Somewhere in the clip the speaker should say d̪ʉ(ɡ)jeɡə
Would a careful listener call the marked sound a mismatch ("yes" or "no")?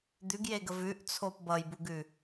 no